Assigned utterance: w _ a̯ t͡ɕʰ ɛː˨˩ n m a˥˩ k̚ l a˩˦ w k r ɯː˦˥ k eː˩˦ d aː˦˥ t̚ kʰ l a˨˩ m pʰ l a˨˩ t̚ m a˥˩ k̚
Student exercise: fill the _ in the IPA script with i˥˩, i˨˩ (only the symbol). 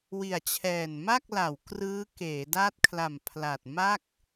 i˨˩